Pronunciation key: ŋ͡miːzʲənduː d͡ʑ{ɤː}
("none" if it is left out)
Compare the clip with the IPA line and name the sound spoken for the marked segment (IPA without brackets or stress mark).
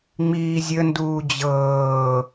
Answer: ɤː